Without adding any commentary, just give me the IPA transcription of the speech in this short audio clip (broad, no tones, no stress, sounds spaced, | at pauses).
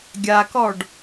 ɡʲ a k ɔ ɖ